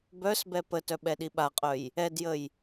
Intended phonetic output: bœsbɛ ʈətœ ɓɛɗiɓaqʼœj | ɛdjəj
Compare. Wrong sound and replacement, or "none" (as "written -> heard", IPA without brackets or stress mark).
ʈ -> p